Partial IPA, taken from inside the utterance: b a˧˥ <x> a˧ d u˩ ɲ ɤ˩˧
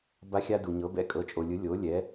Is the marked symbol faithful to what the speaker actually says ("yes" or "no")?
no